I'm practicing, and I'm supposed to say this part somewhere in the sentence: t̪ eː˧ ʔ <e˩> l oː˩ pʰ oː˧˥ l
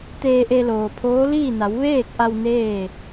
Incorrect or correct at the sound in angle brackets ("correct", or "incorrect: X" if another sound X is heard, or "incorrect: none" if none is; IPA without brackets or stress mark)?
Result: incorrect: e˧